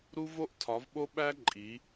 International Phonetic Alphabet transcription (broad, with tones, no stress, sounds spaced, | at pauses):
ɾ u˦ v o˦ ʔ tʰ ɒ˩˧ v ɓ o˦ ɓ æ˦ ǃʼ i˩˧